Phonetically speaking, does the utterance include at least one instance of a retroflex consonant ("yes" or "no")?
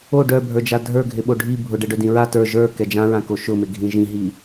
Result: yes